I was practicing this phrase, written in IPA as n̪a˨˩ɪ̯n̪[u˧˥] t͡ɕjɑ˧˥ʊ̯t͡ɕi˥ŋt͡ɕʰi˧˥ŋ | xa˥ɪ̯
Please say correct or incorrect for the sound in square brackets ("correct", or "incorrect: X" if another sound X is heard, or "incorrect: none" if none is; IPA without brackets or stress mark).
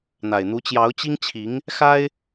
correct